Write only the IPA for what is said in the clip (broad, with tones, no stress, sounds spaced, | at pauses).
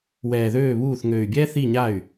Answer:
w ɛː˨˩ ð øː˥˩ β uː˥˩ θ ŋ øː˨˩ y̯ bʲ ɛː˥ θ i˥˩ ɲ a˥˩ y̯